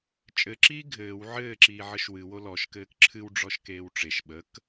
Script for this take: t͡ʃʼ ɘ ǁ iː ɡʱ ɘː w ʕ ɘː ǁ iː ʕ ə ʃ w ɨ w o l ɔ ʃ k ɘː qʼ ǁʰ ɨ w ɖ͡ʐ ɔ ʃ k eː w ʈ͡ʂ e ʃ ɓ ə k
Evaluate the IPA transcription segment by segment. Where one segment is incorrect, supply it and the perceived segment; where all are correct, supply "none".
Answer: qʼ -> k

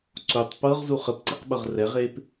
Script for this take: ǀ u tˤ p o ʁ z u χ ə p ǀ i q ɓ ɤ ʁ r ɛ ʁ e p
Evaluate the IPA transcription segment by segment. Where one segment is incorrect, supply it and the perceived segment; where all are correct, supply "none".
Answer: o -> ɤ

